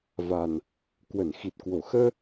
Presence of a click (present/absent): absent